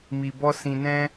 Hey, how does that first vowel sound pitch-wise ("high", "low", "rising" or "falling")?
low